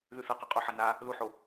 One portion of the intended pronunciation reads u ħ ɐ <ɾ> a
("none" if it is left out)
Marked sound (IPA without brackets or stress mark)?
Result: n